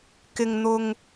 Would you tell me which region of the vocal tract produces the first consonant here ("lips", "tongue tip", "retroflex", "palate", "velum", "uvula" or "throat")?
velum